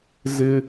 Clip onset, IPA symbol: z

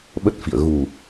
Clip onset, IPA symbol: ɓ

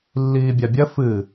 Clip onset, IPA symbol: lː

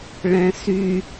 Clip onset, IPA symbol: ɭ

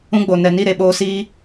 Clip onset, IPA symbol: ũ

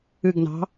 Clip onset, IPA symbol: ɨ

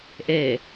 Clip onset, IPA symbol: ʔ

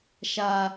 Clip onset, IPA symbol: ʃ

